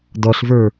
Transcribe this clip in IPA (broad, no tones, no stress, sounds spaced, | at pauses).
d ɔ ɬ v ə˞